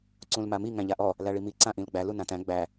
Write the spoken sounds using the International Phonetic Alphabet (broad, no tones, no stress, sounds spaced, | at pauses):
ǀ ũ l m a m i ŋ æ̃ ʎ a ʔ ɔ | l æ ɭ i m i ǀ ã ʔ ĩ l ɡ͡b æ l u n ã t æ̃ ɡ͡b æ